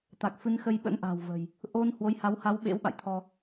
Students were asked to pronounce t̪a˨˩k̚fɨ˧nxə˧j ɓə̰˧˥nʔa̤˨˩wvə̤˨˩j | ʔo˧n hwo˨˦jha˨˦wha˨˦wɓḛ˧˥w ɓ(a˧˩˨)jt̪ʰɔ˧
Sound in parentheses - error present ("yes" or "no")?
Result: yes